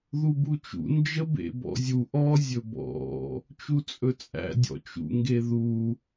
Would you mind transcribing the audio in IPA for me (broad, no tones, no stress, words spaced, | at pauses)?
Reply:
ðubut͡ʃṵ nd͡ʒəbḛbɔ̰zʲu ʔɔ zʲɵbɔ̰ | t͡ʃut͡sʼɵt͡sʼæ̰ dʲɔ̰t͡ʃṵ ŋɡeðu